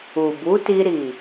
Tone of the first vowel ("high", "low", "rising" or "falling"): low